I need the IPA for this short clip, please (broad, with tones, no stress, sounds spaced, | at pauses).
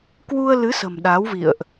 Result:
k w u˧ ə̯ l ɨ˨˦ s ə̤˨˩ m ɗ aː˨˦ w v ḭ˧˨ ə̯ ʔ